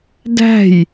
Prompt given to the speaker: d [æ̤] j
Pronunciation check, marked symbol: correct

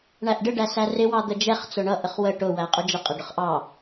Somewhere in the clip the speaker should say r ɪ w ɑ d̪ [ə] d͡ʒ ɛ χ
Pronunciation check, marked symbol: correct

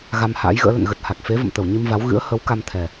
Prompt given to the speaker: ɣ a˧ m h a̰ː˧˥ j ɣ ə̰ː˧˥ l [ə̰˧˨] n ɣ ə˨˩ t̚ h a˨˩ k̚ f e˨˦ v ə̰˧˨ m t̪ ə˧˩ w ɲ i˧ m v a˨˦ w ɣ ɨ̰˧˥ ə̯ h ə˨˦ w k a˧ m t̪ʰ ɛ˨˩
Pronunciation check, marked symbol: correct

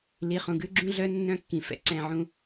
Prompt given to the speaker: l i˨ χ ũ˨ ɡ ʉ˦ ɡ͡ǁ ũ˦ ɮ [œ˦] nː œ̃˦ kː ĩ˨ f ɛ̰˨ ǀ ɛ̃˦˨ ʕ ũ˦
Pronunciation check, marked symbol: correct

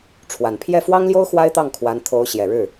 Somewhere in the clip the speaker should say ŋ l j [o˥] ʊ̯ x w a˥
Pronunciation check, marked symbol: correct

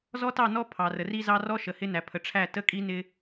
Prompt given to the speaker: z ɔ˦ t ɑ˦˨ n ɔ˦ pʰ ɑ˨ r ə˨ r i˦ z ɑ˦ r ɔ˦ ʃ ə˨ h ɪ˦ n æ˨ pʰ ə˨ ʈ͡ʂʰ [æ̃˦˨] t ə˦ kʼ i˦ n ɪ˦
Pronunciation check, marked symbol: incorrect: æ˦˨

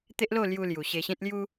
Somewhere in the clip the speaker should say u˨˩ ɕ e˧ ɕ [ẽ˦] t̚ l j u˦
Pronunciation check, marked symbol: correct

